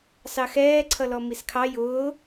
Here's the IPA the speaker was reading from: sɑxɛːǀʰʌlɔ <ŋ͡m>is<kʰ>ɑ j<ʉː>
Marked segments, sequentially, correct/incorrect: incorrect: m, correct, incorrect: ʊː

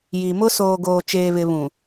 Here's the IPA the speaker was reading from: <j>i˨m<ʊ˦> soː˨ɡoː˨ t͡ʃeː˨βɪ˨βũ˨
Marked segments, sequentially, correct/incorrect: correct, correct

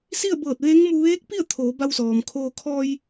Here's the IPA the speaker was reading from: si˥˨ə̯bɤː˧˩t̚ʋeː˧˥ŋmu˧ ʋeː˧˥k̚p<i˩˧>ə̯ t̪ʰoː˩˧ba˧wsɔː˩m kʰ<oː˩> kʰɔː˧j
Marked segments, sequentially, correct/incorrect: incorrect: i˥˨, incorrect: oː˧

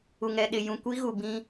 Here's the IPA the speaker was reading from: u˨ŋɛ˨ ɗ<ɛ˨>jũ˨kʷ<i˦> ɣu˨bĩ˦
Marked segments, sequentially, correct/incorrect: incorrect: ɪ˨, correct

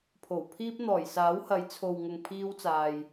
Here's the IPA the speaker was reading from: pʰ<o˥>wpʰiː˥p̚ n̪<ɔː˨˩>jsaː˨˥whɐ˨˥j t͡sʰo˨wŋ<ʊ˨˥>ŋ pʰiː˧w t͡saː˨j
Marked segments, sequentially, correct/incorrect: incorrect: o˨˩, correct, incorrect: ʊ˨

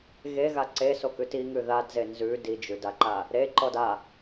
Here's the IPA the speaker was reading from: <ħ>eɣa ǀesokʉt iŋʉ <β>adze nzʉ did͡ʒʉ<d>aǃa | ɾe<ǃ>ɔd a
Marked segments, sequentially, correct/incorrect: incorrect: ɣ, incorrect: ð, correct, correct

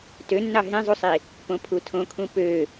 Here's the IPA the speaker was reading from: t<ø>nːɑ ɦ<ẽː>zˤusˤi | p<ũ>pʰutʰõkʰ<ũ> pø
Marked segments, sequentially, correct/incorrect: correct, incorrect: ẽ, incorrect: õ, correct

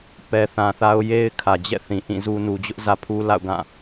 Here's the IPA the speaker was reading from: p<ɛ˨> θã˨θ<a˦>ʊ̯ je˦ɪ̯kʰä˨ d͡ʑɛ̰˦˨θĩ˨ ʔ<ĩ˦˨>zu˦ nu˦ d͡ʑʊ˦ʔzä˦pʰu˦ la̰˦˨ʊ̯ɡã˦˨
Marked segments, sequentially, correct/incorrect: correct, correct, correct

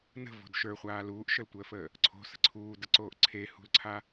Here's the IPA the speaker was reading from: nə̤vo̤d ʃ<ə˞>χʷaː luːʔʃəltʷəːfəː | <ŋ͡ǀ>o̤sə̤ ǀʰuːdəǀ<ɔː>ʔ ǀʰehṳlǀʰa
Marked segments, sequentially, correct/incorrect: correct, incorrect: ǀʰ, incorrect: oː

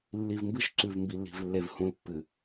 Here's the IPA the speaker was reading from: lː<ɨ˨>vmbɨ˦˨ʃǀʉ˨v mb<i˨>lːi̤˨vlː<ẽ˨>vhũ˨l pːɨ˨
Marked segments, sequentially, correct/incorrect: incorrect: i˨, correct, incorrect: e˨

